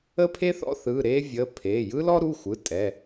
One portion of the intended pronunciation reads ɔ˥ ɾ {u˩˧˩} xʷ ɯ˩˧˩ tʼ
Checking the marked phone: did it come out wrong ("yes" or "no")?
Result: no